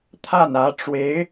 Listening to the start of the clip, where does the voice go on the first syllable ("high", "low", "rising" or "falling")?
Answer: falling